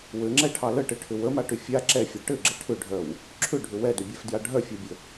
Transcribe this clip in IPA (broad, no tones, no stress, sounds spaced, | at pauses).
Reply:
w ɘ ŋ͡ǁ ɛ ʈʰ ɑ l ə ʈ ɘ ʈʰ ʏ w ə m a ʈ ʏ fʲ a ǁ ɛ fʲ œ ʈ ɘ ɡ͡ǁ ɘ ʈʰ ʏ ɖʱ œ w | ǁʰ ʏ ɖʱ ʏ w ɛ d ʏ bʲ ɛ f d j a ɖʱ œ fʲ a bʲ ə